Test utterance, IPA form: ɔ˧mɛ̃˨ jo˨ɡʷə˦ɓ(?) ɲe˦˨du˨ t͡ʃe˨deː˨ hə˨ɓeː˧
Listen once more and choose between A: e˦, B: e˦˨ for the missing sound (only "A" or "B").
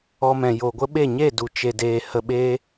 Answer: B